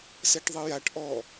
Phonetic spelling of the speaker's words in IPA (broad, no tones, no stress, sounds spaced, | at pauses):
s ɛ ʈ ðˤ ɘ j a ʈ ʔ ɔ